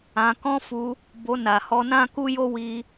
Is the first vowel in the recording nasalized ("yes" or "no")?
yes